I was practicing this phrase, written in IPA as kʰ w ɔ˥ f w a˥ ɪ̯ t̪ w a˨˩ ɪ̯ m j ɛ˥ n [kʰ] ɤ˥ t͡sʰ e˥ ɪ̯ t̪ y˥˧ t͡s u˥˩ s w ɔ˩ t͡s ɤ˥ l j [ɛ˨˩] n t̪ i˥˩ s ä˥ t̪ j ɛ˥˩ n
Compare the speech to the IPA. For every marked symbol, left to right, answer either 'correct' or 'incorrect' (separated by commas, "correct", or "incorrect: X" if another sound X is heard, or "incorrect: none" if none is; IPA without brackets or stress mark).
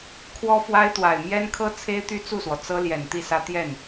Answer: correct, correct